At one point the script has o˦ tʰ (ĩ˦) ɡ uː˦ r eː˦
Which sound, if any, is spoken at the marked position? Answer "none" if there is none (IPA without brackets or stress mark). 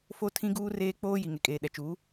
ĩ˦